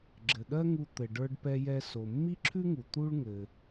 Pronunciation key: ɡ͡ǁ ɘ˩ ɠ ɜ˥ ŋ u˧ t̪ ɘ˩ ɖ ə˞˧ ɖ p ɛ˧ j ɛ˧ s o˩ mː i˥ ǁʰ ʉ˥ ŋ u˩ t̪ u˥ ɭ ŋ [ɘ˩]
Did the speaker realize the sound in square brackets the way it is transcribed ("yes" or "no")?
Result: yes